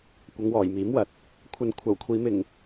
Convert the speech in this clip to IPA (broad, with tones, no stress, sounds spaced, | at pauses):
kʷ ɐ˨˧ ŋ w ɔː˨˩ j m iː˨˥ m w ɐ˨ t̚ | kʷʰ ɐ˧ n kʷʰ ɐ˨˩ w kʷʰ iː˨˧ m ɪ˨˩ ŋ